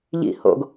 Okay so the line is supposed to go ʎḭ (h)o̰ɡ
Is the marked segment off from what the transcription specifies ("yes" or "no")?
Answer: no